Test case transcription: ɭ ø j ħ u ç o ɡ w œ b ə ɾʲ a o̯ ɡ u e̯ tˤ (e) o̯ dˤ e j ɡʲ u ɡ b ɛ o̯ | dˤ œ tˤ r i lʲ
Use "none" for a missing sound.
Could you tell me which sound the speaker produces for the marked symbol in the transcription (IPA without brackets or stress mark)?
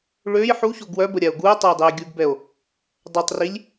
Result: e